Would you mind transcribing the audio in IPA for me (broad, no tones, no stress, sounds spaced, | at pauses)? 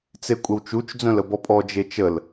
t͡s e kʷʼ ə w t͡ʃ u t͡ʃ d͡z œ̃ l ə b ɔ pʼ ɔ d͡ʒ e t͡ʃ ə l